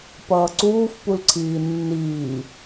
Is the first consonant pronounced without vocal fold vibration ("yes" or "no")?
yes